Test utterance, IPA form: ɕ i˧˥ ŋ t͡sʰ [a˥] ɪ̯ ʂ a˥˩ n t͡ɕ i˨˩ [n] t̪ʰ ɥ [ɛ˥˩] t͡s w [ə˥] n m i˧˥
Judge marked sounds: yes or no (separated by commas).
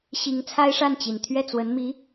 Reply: yes, yes, yes, no